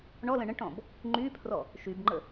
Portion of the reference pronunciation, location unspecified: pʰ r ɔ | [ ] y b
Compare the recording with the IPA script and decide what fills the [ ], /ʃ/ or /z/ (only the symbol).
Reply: ʃ